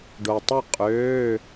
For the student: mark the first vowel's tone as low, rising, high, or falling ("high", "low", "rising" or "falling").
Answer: low